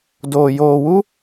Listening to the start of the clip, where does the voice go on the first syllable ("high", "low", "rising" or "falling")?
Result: low